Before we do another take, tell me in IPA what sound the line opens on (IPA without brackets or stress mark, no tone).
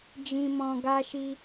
d͡ʒ